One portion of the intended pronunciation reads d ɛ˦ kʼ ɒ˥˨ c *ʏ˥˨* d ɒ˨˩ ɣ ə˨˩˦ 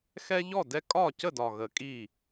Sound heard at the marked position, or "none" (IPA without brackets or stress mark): ə˥˨